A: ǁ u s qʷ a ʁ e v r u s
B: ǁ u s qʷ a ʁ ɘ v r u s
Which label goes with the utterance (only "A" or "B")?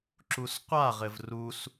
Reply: B